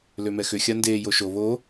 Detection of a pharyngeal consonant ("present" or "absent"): absent